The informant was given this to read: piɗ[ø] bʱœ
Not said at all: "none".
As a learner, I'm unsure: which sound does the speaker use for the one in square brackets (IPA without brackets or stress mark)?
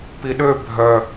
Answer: ø